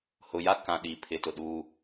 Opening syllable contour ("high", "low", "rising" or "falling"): low